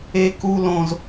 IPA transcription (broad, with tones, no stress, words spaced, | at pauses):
e˦ku˦ lõ˦z